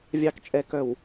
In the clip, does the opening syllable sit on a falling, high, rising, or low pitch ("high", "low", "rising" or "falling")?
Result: low